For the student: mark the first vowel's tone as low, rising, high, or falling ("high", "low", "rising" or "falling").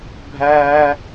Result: high